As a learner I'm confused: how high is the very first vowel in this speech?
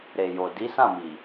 mid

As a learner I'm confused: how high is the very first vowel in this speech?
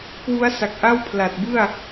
high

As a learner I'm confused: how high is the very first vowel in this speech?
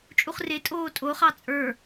high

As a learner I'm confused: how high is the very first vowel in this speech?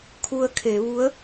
high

